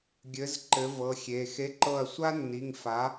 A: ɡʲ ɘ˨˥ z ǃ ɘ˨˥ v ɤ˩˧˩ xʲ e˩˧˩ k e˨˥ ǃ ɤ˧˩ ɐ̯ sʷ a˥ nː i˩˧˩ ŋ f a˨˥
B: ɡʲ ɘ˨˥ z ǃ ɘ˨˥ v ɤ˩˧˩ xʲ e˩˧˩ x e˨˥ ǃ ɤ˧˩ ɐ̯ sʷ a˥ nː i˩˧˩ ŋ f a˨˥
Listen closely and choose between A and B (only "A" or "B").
B